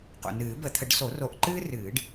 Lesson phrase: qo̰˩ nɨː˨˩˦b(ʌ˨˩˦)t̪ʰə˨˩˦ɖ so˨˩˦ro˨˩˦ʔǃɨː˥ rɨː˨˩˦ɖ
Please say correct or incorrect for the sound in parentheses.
incorrect